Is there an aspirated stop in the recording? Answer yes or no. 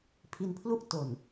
yes